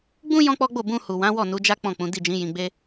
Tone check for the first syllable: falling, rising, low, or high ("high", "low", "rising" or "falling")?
high